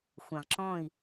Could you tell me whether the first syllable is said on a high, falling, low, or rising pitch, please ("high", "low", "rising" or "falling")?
low